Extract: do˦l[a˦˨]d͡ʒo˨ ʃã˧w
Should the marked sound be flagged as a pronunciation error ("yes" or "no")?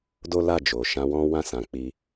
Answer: no